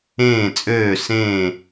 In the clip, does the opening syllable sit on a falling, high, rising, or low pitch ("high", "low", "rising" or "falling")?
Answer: falling